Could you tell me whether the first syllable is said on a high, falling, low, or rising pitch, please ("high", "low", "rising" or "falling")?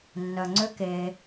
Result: low